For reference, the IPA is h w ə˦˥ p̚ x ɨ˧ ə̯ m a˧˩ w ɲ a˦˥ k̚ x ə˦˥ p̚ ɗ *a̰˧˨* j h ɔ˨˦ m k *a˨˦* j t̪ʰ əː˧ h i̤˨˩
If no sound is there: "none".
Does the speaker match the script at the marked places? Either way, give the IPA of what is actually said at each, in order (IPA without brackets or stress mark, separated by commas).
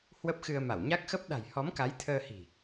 a̤˨˩, a˨˦